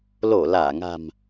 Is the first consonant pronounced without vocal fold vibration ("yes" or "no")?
no